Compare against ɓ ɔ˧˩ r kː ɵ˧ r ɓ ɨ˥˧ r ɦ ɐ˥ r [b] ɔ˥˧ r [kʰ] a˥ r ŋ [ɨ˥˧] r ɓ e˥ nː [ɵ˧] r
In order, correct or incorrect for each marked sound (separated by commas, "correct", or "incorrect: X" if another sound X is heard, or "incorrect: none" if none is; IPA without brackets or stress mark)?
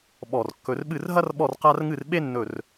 incorrect: ɓ, incorrect: q, correct, incorrect: ɵ˧˩